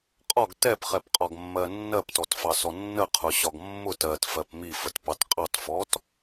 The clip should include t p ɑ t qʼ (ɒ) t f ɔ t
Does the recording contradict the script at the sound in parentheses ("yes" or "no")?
yes